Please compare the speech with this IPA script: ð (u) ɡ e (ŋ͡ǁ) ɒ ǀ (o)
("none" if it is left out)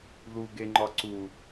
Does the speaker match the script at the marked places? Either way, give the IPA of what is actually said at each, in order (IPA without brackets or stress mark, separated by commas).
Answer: u, ŋ͡ǃ, u